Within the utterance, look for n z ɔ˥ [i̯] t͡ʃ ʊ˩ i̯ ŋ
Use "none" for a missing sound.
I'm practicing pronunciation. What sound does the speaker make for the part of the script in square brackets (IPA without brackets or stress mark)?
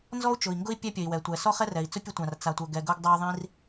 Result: u̯